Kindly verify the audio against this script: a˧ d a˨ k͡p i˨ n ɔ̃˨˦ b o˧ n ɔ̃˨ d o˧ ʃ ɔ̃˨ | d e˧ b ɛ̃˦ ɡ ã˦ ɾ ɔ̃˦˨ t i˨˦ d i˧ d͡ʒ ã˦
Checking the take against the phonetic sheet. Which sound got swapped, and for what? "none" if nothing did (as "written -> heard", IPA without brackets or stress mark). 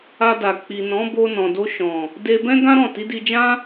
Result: none